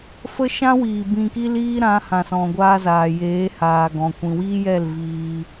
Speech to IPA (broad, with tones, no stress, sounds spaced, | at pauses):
f ə˦ ʃ ã˦ w iː˨ b ĩ˧ k i˦ l iː˦ ɾ ã˨˦ h ã˨ s ɔ̃˨ ɡʷ aː˧ z aː˨ j eː˨˦ h aː˨ ɡ ɔ̃˨ kʷ ĩ˨ w iː˦ j ɛ˦˨ l v iː˧